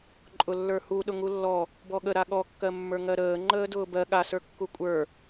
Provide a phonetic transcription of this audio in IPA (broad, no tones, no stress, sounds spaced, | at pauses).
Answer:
ǃʼ ʊ lː ə˞ h u ɗ ʊ ŋ u lː ɔ | b ɔ ɠ ə ɾ a ɠ ɔ kː ɜ mː ə˞ ŋ ɜ ɾ əː ŋ͡ǃ əː d ʊː b ɜ ɠ a s ə˞ kː u kʷʼ ə˞